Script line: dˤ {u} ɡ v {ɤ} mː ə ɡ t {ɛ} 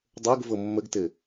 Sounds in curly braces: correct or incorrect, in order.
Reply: incorrect: o, correct, incorrect: ɘ

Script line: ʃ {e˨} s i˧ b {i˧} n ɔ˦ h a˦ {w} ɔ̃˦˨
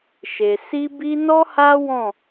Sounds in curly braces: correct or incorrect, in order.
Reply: correct, correct, correct

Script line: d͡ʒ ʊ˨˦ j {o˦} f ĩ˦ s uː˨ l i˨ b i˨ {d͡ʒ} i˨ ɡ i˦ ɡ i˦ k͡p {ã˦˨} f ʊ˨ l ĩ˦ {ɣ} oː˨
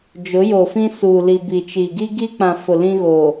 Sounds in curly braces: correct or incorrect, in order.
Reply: incorrect: o˨, incorrect: t͡ʃ, incorrect: ã˨, correct

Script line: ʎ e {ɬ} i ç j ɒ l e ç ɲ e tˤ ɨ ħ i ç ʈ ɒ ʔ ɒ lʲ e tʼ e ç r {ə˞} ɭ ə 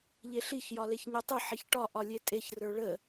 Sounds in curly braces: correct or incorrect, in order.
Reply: correct, correct

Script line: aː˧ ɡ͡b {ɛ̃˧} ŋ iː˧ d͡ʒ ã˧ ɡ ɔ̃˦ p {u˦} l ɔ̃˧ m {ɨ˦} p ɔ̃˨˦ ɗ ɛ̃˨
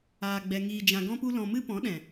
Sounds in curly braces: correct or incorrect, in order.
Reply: incorrect: ɛ˧, correct, correct

